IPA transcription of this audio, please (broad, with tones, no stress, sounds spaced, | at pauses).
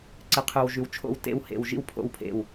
ǀ ɨ˨˩ qʰ ʉ˨˩ w ʒ ʉ˨˩ w t͡ʃʰ o̰˥˩ w t ḛ˥˩ w h ḛ˨˩ w ʒ ḭ˥˩ w pʰ o̰˥˩ w pʰ ḛ˥˩ w